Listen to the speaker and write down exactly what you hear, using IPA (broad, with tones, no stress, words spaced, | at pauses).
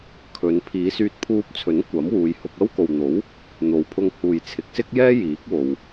kʰɵ˨˧n pʰiː˨˧syː˧t̚pʰuː˧p̚t͡sʰɵ˨˥n kʷɐ˨˥mwuː˨˧jhʊ˧k̚ ɐ˥wko˨wn̪o˨˥w | n̪o˨wpʰʊ˧ŋ huː˨jt͡sʰɪ˨˥k̚sɪ˥k̚jɛː˥ jiː˨˥k̚ wo˨w